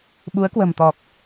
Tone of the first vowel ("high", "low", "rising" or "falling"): rising